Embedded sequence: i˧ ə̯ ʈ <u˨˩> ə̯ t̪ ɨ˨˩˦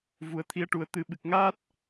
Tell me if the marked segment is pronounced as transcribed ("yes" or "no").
yes